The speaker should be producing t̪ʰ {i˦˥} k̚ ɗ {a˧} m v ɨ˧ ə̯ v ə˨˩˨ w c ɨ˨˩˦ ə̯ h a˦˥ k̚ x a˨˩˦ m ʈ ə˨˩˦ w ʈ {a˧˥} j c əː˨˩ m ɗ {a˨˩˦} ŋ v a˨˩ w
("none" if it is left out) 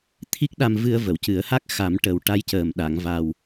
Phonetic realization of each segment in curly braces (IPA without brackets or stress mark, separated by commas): i˦˥, a˧, a˧˥, a˨˩˨